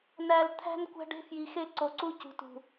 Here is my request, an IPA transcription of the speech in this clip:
n æ˨ l t̪ʰ æ̤˦ n kʷ æ̤˦ ɖ e̤˦ f j i˨ x e˦˨ ǀ o˨ ǀ u˦ c ṳ˨ t ṳ˨

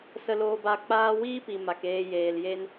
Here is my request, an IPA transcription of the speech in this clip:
s ə˦ l oː˦ b a˦ k͡p aː˦ w iː˦ p i˨ m a˨ k eː˧ j eː˨ l j e˧ n

